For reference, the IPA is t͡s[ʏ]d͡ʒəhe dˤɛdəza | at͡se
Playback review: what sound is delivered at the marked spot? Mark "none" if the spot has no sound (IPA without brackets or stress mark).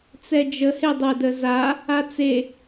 ɛ